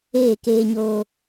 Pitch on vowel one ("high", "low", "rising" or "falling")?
falling